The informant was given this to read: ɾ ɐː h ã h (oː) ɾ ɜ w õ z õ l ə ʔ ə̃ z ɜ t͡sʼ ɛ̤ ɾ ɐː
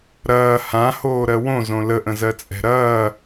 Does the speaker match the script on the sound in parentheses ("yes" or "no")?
yes